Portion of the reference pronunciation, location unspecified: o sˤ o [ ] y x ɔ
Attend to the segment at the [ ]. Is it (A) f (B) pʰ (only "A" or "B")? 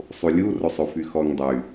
A